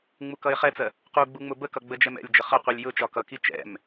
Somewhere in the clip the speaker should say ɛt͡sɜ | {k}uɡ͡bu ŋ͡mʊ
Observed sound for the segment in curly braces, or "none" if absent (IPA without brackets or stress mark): q